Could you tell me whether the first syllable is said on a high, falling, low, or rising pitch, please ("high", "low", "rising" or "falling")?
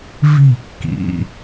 falling